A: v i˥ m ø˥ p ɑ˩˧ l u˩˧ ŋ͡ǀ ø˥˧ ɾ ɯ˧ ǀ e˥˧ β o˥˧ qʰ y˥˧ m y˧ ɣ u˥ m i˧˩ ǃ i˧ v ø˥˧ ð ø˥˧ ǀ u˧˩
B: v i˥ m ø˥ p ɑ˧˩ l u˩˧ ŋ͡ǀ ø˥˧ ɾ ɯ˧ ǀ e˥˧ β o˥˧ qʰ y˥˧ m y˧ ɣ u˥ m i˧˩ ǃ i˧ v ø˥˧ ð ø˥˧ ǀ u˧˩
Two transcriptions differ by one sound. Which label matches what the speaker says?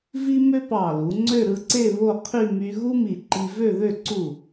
B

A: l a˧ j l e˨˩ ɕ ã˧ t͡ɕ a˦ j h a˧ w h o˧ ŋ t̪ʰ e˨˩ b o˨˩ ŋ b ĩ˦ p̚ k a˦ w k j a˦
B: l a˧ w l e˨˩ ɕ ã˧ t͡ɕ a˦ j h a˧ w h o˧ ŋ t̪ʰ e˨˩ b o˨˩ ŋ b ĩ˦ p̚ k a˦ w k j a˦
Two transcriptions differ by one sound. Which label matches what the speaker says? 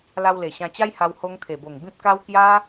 B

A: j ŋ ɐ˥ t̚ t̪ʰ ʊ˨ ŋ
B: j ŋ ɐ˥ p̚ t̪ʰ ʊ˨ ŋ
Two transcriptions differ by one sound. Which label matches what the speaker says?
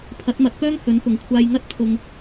A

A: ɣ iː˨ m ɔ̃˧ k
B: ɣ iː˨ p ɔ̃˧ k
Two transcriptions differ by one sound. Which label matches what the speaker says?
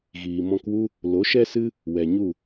A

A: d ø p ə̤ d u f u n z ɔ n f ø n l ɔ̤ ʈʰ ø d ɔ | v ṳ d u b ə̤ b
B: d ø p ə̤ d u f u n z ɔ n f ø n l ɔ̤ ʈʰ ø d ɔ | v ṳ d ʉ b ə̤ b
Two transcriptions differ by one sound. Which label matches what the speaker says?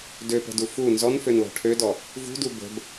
A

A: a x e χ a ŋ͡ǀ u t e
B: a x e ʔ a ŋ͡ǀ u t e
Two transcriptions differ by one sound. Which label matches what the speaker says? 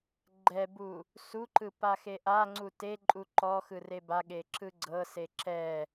B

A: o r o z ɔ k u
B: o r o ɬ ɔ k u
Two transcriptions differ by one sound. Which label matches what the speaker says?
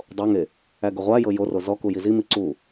A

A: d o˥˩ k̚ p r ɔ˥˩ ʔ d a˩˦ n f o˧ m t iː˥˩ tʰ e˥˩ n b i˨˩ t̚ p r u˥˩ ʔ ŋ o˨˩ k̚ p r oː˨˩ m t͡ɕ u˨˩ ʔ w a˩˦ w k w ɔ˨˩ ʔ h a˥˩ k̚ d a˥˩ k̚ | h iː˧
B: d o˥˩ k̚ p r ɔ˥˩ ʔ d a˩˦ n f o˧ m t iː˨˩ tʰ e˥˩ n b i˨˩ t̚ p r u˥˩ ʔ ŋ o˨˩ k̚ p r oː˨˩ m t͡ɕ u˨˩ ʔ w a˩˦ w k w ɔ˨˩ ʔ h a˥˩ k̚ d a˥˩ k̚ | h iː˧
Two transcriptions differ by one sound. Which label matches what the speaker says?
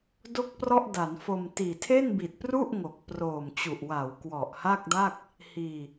B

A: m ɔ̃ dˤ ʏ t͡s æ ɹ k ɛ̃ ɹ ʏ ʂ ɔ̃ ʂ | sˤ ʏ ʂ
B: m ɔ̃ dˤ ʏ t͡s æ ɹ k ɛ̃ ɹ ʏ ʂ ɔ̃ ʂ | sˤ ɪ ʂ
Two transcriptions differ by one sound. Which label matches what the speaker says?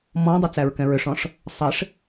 B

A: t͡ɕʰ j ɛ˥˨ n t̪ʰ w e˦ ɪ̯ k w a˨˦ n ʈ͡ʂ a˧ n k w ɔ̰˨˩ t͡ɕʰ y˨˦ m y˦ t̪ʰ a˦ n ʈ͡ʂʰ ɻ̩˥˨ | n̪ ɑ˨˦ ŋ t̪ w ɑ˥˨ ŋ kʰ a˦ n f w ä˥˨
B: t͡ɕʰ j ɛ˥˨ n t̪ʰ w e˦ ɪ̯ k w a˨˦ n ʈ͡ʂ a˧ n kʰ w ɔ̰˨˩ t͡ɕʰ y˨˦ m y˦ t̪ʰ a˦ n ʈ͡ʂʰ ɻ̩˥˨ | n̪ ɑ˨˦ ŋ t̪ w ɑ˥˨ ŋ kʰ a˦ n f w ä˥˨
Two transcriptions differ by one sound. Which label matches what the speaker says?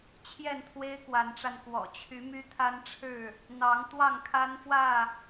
A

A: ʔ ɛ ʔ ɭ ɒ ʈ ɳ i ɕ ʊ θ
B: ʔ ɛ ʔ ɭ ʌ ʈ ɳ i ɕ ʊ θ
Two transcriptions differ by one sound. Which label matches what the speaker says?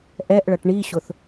B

